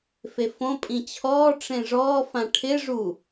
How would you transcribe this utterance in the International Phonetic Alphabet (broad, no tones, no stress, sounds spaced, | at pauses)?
f e f õ pʼ ĩ t͡ɕʰ ɔː ʈ͡ʂ ẽ ʐ ɔː f ã ʈʰ ɪ ʐ u